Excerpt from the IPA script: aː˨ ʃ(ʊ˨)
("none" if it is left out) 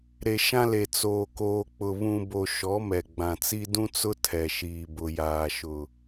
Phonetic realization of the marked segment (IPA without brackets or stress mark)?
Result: ʊ˨